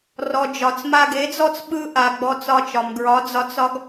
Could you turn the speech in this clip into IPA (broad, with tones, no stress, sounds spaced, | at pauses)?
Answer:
r ɔ˨ d͡ʒ ɒ˨ t͡s m a˧ ɡ e˨˦ d͡z ɔ˦ t͡s ɓ ɯ˧ ʔ a˨ ɡ͡b ɔ˧ t͡s ɒ˧ t͡ʃ ɒ˨ m ɡ ɹ ɒ˨˦ d͡z ɒ˧ t͡s ɒ˦ ɡ